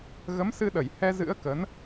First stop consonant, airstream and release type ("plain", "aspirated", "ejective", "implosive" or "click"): implosive